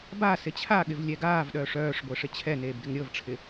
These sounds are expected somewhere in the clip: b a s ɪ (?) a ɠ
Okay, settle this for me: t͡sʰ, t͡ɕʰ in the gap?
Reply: t͡ɕʰ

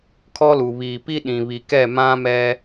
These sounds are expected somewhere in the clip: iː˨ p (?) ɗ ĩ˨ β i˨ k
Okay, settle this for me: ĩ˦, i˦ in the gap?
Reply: i˦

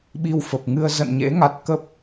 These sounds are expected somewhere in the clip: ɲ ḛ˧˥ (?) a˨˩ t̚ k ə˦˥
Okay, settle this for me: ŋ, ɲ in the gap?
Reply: ŋ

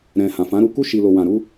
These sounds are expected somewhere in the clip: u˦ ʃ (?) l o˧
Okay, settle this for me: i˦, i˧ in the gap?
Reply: i˧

